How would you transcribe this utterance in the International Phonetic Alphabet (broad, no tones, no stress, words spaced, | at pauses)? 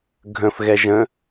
ɡʱə̃f ɣɛʒə̃